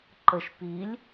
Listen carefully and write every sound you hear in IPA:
ǃ ə ʃ p i lʲ

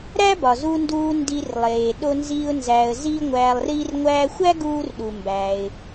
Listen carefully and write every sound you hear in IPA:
ɾ æ˥ b ɒ˩ z u˧ n d uː˧ n d i˧ r lˠ eː˩ ɗ o˧ n z iː˧ ʊ̯ n z æː˩ ə̯ z iː˥ ŋʷ æː˧ lˠ r iː˥ r ŋʷ æː˧ xʷ æ˥ ɡ uː˥ r ɗ u˩ m b æ˩ ɪ̯

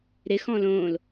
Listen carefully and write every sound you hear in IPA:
ɾ ɪ x ɔ̃ l õ l

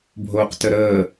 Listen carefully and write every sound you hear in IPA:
bʱ oː q t ə ɾ əː

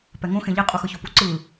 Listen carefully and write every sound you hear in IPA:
p ɛ ŋ õ x ẽ ʎ i qʼ u x ɯ ç o p u ǀ ɯ

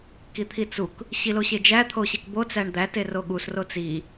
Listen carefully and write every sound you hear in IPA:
k i t̪ʰ i t͡s u k | ɕ i l o ɕ e d͡ʒ æ t̪ʰ o ɕ e k b o t͡s æ ɳ d̪ æ t e r o ɠ u s r o t͡s i

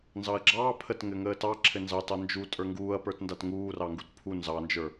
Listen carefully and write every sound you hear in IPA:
n z ɑ ɐ̯ ɡ͡ǁ ɑː pʰ ə t ŋ ɘ ŋ əː t ɑ ǁʰ ɘ n z ɑ t ɑ n d͡ʒ u tʼ ə˞ ŋ ɡ uː ɐ̯ p ə˞ t n d a t ŋ uː r ɑ ŋ ɡ u t pʰ u n z ɑ n d͡ʒ ə˞

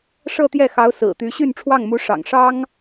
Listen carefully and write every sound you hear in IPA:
ʂ ɤ˥˧ t̪ j ɛ˥˩ x ɑ˧˥ ʊ̯ s ɹ̩˨˩ t̪ y˧˥ ɕ y˥˧ n ʈ͡ʂʰ w ɑ˥˩ ŋ m u˧˥ ʂ ɑ̰˨˩ ŋ ʂ ɑ˥ ŋ

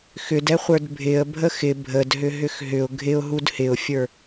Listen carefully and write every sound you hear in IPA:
x ʏ d ɛ χʷ ə˞ d bʱ ɪ ə̯ bʱ ə x ɪ bʱ ə d ɦ ʏ ɦ ʏ x ɦ ʏ ʊ̯ ɡʱ ɪ ʊ̯ ɦ u d h ɪ ʊ̯ fʲ ə˞

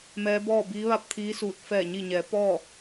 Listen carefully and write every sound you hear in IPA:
m ɛː˧˥ b ɔː˥˨ b iː˧˥ ʋ a˥˨ p̚ t̪ʰ iː˧˥ s uː˧˩ t̚ f ɛː˧˩ ɲ i˧˩ ɲ ɛː˩˧ p ɔː˥˨

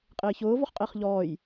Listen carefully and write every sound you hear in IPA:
qʼ ɪː ç ʊː v ɔ χ qʼ ɪː χ ʎ ɔː j

